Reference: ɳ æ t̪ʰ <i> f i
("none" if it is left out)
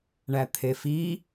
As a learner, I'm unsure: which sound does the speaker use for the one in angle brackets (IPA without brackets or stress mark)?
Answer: e